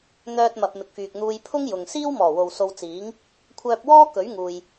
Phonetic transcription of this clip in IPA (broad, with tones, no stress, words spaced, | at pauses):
n̪œː˧t̚mɐ˨p̚ mɪ˨k̚fyː˨k̚n̪uː˧j pʰʊ˥ŋ jʊ˨ŋ siː˥wmɔː˨˩wo˨w so˧w t͡siː˨˥ŋ | kʷʰœː˧p̚wɔː˥ kɵ˨˥ɥŋuː˨j